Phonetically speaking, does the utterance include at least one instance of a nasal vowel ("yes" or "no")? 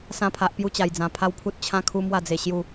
yes